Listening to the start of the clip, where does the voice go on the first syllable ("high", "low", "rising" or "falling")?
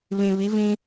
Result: low